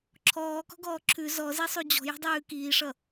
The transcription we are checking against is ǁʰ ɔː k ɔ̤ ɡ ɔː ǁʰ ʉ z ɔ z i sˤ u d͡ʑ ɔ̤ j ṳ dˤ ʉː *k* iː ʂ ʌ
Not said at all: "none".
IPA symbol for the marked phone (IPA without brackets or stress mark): k